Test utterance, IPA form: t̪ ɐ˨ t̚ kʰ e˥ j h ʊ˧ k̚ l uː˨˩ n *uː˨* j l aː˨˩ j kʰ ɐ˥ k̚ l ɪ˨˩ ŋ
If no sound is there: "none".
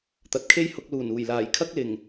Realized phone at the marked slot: uː˨˩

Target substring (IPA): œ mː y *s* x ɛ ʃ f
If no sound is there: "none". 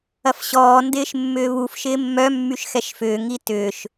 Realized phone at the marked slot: ʃ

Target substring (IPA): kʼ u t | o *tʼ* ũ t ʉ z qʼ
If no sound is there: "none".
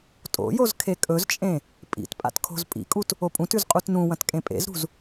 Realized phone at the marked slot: pʼ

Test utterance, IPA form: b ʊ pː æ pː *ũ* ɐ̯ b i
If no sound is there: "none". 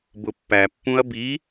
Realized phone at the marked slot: ũ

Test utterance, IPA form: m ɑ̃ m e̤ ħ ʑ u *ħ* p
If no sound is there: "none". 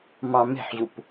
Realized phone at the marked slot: none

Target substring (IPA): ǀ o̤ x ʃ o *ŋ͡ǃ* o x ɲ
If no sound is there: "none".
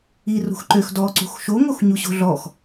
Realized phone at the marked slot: ŋ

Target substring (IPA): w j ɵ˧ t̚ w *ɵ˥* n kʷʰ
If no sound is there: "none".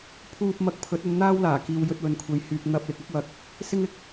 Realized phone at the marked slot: ɵ˨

